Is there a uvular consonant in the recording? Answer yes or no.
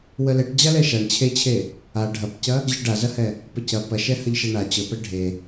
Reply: no